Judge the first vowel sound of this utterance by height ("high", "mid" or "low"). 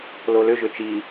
mid